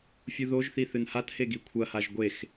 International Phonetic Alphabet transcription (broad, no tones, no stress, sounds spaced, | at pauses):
fʲ u ð o ʒ θ i θ ɨ n h a t h e ɡ i kʷʰ ɐ h a ʒ ɡʷ e x